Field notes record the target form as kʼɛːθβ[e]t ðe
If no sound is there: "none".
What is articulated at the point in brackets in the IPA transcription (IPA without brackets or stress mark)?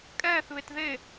e